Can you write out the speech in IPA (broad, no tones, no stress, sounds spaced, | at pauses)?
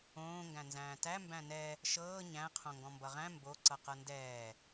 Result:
õː ŋ ɡ æ̃ n z æ̃ː t æ m b æ̃ n ɛ | ʃ ɤː ɲ æ̃ qʰ õ ŋ ɡ ɔ̃ m b ʌ ʁ æ̃ m b o ǀ ʌ q ɤ n d ɛː